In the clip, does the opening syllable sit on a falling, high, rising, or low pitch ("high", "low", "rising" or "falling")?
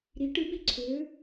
rising